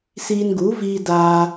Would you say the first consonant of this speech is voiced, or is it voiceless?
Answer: voiceless